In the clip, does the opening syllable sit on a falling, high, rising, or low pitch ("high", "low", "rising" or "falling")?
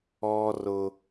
high